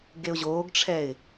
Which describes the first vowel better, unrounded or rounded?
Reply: unrounded